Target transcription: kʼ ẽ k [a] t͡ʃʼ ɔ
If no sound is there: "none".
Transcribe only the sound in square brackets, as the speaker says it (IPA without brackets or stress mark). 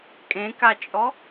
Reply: a